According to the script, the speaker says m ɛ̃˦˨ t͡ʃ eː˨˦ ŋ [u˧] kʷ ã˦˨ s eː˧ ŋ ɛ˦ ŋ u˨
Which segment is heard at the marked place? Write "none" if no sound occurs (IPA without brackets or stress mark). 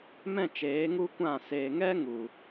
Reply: u˦